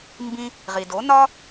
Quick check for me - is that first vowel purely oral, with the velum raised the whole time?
no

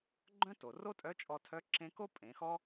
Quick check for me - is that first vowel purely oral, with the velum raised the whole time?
no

